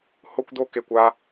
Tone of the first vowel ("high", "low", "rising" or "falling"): high